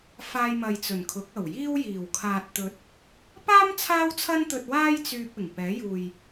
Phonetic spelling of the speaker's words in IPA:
f aː˧ j m ɐ˨ j t͡s ɵ˨˩ n kʰ ʊ˨˥ k̚ ɐ˨˩ w j iː˥ w j iː˨˩ w kʰ aː˨ t̚ t̪ ɵ˨ t̚ | p aː˥ m t͡sʰ aː˥ w t͡sʰ ɐ˥ n t̪ ɵ˧ t̚ w aː˥ j t͡s yː˧ p̚ ɪ˨˩ ŋ p ɛː˨˥ j uː˨ j

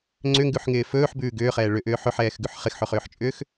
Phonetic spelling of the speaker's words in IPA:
ŋ͡ǀ ʏ ŋ ɡ ʉ ħ ŋ ɪː f ɵː ħ b ʉː ɡ ʏː χ ɛː ɭ ʏ ʔ ʏː ħ ɵ ħ ɛː x ɡ ʉ ħ χ ɪ x ħ ɵ χ ʏː ħ t͡ʃʼ ʏː x

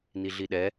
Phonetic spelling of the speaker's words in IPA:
n i ɮ i ɗ ɛ

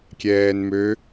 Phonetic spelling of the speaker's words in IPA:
kʲ ɛː n m ø

